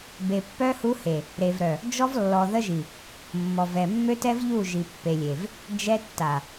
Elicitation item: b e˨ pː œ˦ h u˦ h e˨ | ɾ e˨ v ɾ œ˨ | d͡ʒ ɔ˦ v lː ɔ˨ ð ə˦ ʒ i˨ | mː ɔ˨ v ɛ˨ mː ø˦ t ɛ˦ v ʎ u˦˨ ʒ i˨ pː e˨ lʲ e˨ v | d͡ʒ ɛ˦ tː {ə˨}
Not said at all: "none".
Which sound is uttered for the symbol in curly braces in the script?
a˨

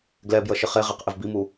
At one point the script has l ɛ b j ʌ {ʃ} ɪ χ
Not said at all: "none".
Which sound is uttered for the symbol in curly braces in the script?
ʃ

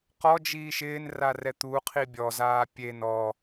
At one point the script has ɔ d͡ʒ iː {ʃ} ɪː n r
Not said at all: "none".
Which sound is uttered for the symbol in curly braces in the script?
ʃ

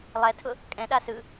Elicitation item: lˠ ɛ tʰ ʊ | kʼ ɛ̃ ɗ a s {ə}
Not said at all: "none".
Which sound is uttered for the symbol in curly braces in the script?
ɯ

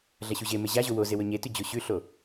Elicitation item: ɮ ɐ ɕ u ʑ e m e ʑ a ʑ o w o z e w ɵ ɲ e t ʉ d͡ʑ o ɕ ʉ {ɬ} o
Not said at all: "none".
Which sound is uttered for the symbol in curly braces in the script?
ɬ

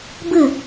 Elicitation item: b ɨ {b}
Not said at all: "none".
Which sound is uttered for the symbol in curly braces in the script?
none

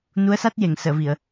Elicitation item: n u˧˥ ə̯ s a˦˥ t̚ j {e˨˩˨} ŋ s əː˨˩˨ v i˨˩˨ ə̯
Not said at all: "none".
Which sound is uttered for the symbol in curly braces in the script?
e˨˩˨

